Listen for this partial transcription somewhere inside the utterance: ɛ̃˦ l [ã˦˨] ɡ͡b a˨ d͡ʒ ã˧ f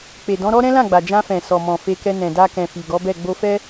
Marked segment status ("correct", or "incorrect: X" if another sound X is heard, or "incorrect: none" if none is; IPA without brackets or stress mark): correct